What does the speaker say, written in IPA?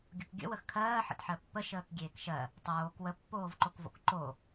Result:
ɡʲ o k ɡʲ ə̰ w ə x kʰ ɜː ħ ə̰ t ħ ɜ pː ə ʃ əː k ɡʲ eː k ʃ ɜ | tˤ oː k w ə pː oː v ǃ o k v o̰ k ǃ o

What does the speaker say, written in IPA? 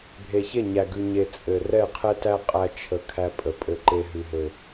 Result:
bʱ e˨ ç e˦˨ ɲ æ˨ ɡ ʉ˨ ɲ e˨ t͡sʼ ɘ˨ r ɛ˦˨ qʰ ɛ˦ t æ˦ qʼ æ˦ t͡ʃʰ ə˨ kʰ æ˦ pʼ ə˨ pʼ ɘ˦ ǃ e˦ ɦ ʉ˨ ɦ ɘ˨

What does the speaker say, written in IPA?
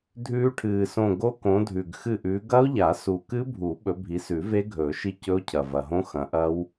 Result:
dʱ ʉː˦˥ ʈʰ ɨː˨˩ s õ˦˨ ɡ o˦˥ k õ˨˦ dʱ ʉ˨˩ ɡ x ɨ˦˨ ʔ ʉː˨˦ ɡ ɐ˦˥ o̯ ʎ a˨˩˦ s u˨˩ k ɨ˦˥ bʱ u˨˩˦ ɓ ɵ˨˦ bʱ i˨˦ s ʉ˨˩˦ v e˦˥ ɡʱ ɵː˨˩˦ ʃ i˦˨ c ɵ˦˥ o̯ cʰ ɐ˨˩ v ɐ˨˩ ɦ õ˦˥ x ɐ̃˨˦ ʔ ɐ˦˥ w

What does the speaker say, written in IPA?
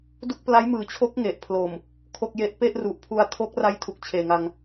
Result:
d u˥˩ k̚ p l a˦˥ j m ɯː˨˩ t͡ɕʰ o˦˥ k̚ ŋ e˨˩ ʔ pʰ l o˨˩ m | kʰ o˥˩ k̚ j e˥˩ ʔ p e˥˩ ʔ r u˨˩ ʔ pʰ u˧ a̯ tʰ o˦˥ k̚ r a˦˥ j tʰ u˨˩ k̚ t͡ɕʰ eː˨˩ ŋ a˧ ŋ

